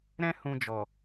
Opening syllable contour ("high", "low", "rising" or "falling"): high